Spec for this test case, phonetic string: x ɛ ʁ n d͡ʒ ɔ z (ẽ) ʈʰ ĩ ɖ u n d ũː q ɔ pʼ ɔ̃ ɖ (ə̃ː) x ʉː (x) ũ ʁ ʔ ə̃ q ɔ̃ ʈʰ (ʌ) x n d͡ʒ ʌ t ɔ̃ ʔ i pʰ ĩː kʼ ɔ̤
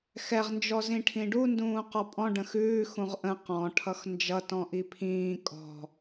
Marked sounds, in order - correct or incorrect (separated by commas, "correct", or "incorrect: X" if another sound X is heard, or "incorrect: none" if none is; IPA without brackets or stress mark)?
incorrect: ĩ, incorrect: ə̃, correct, correct